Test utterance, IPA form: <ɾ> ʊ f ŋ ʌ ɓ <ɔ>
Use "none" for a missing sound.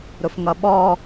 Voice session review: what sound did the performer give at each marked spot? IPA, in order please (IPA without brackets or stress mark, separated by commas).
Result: ɾ, ɔ